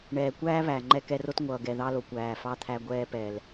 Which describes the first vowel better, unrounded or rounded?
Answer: unrounded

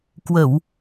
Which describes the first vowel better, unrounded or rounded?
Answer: unrounded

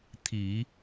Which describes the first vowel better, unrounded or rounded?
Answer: unrounded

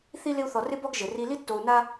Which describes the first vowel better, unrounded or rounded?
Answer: unrounded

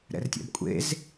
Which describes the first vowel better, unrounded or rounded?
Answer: unrounded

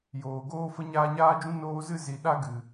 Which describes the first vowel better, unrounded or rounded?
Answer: rounded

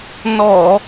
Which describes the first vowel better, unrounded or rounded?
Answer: rounded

